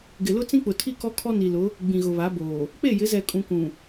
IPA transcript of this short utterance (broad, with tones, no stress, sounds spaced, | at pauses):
ɡ ɪ˨ l ʊ˦ t͡s ĩ˦ k͡p ʊ˨ tʰ i˦˨ k ɔ˦ kʰ ɔ˦ n i˨ l ʊ˨˦ | ɡ͡b ĩ˨ ɣ ʊ˨ β a˨˦ b oː˨ | k͡p e˦˨ j ɪ˨˦ z ɛ˨ kʼ ũ˨ k ũ˨